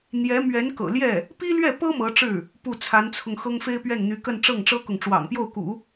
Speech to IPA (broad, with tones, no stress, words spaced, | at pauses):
n̪jɛ˧˥ mɥɛ˧˥n kɤ̰˨˩ljɛ˥˩ | pi˥lɥɛ˥˩pɤ˥ mɤ˧˥ʈ͡ʂɻ̩˥˩ | pu˥˩t͡sʰa˧˥nt͡sʰʊ˧ŋ xɤ˥ŋfe˥ɪ̯pɥɛ˥˩nn̪y˧˥ kə˥˧nʈ͡ʂɤ˥˩ŋʈ͡ʂɤ˥kʊ˨ŋ ʈ͡ʂwɑ̰˨˩ŋpjo˥˩ʊ̯kṵ˨˩˦